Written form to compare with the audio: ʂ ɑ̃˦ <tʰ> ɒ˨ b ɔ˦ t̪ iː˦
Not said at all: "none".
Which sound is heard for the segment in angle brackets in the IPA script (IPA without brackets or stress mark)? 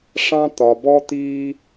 t̪